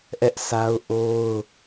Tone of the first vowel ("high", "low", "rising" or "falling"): high